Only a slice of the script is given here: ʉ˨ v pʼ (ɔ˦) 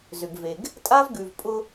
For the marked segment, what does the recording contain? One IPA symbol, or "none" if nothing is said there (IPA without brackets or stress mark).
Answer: ʊ˦